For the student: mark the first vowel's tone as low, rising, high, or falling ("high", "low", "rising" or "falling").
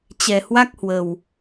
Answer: low